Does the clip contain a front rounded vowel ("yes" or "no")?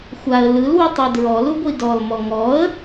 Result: no